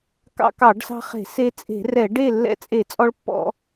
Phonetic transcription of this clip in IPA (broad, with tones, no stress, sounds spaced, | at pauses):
k ɑ̰˧ k ɑ˧˩˧ ɖ s ɑ̤˧ χ e̤˧˩˧ s e˧ t͡sʼ e̤˧˩˧ r ɛ˧˩˧ ɖ e˥˨ lː ɛ̰˧ t͡sʼ e˧˩˧ t͡sʼ ɔ˧ ɭ pː ɔ̰˧